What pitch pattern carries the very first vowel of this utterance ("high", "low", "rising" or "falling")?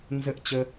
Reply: high